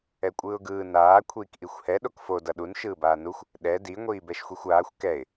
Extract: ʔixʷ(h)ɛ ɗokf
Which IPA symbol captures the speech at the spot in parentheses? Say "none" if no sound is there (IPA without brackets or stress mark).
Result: h